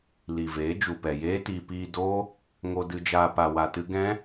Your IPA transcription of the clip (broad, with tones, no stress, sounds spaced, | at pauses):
l i˨ v eː˨˦ d͡ʒ u˨ p ɛ˨ j eː˦ t iː˧ p iː˧ d oː˦ | ŋ o˧ d ɨ˧ d͡ʒ aː˧ p a˧ w a˧ t ɨ˦ ɡ ɛ̃˦